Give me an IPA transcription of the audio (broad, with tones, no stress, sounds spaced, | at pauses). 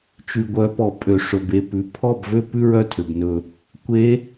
t͡ʃ ʉ˩ ɡʷ œ˩˧ p ɔ˩ pʼ ø˩ ʂ ɵ˩ b e˥˩ p ʉ˩˧ pʰ ɔ˥˩ b v ø˥ p ʉ˥ ɹ œ˥˩ tʰ ø˩ b n ɵ˧˩ | kʷ e˧˥